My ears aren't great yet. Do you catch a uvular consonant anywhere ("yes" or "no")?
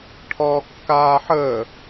no